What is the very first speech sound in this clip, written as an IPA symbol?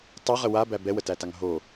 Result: tˤ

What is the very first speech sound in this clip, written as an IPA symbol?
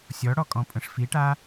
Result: sʲ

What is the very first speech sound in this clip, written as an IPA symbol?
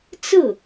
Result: t͡s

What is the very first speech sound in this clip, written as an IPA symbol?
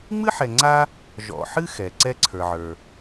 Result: ŋ͡m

